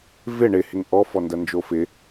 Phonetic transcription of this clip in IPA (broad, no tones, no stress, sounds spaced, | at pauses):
v ɪ ɳ ɪ h ɪ ŋ ʔ ɔ f ɔ n d ɐ n d͡ʒ o f ɪ